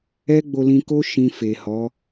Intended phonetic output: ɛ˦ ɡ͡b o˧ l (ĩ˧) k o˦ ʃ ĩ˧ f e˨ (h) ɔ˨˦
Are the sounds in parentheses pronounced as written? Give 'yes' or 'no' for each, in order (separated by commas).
yes, yes